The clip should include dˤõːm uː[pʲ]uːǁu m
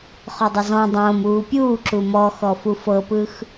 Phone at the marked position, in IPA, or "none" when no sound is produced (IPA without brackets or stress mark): pʲ